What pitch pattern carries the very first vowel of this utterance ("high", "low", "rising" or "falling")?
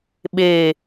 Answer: low